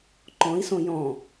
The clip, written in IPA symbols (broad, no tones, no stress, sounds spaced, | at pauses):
ǃ ɔ̃ i̯ s õ j ɔ̃